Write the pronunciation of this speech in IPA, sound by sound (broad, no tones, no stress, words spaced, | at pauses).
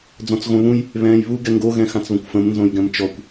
d͡zɔ̃t͡sɣõβũj | βɛ̃ːjβu ɡɛŋɡo ɣɛ̃xãt͡sβə̃kʷfə̃m nzõjɡɛ̃mt͡ʃɔkʷ